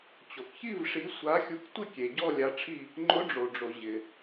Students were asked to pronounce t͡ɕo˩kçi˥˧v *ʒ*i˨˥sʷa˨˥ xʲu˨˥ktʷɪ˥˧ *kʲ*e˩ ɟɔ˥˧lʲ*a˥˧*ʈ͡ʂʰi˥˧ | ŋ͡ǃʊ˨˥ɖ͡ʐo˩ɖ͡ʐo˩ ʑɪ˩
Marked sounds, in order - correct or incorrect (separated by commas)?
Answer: incorrect, correct, incorrect